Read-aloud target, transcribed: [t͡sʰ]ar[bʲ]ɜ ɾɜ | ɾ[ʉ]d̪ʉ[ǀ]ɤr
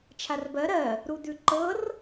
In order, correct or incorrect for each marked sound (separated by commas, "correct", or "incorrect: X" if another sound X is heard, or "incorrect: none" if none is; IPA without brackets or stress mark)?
incorrect: t͡ʃʰ, incorrect: b, incorrect: u, incorrect: ǃ